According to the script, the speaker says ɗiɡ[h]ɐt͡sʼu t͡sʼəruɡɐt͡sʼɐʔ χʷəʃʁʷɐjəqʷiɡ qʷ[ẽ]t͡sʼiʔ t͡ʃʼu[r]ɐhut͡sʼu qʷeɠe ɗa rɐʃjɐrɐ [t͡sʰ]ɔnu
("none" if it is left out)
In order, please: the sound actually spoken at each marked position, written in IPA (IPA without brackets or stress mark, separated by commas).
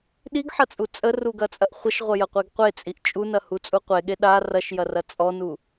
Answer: ħ, e, n, t͡sʼ